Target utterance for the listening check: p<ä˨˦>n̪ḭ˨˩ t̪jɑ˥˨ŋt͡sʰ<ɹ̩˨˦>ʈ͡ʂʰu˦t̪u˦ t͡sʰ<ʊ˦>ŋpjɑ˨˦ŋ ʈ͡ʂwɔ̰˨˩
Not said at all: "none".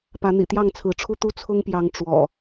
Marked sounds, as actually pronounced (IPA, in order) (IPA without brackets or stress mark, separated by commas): ä˨˦, ɹ̩˨˦, ʊ˦